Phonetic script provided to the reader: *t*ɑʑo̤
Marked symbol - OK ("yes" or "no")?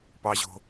no